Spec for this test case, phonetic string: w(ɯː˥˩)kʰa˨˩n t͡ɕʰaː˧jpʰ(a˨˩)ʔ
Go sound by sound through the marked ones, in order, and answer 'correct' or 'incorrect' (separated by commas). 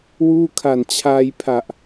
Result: incorrect, correct